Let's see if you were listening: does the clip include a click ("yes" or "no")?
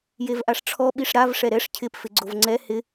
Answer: yes